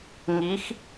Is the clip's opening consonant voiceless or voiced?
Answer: voiced